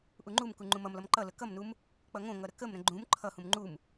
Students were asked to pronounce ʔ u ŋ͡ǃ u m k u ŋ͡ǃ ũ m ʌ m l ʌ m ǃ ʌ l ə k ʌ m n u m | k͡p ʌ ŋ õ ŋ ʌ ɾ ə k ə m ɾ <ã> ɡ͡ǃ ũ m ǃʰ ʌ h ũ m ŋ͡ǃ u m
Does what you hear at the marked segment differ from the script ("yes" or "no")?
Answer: yes